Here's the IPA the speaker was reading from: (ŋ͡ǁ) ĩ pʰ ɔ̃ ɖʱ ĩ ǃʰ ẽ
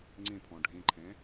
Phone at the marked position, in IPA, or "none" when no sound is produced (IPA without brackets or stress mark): ŋ͡ǀ